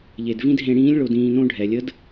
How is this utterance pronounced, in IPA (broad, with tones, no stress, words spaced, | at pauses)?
ʎe˩dvĩ˥d ɦẽ˧ɽĩː˧˥lʲ ɭo˧dĩː˧nõ˥ɖʱɛ˩ lʲə˧˥d